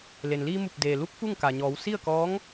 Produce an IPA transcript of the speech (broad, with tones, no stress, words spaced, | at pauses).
le˩nliː˧mu˧˩p̚ deː˩lu˧˥k̚ fu˥˨ŋka˩ɲɔː˩˧w si˥˨ə̯kɔː˧˥ŋ